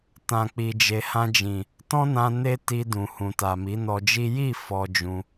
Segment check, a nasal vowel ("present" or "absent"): present